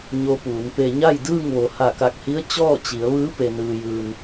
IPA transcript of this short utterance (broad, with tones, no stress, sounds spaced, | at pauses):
ɲ o˧ p uː˩˧ n p e˧ ɲ a˥˨ j d ɯː˥˨ ŋ ʋ o˩ h a˧˩ k a˧˩ k̚ h i˧˥ ə̯ t͡ɕ ɔː˥˨ t͡ɕ i˩˧ ə̯ ʋ ɯː˧˥ p e˩ n ɯː˩ j ɯː˩ n